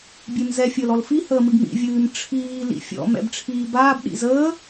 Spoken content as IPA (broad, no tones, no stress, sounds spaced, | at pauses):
bʲ e m z ɛ fʲ əː l ɔ l f i h əː m ɨ ɡ m ḭ vʲ ɨː m ʈ͡ʂʰ iː l ḭ fʲ ɔ̰ m ɛ̰ b ʈ͡ʂʰ iː b aː b ɗ ḭ z əː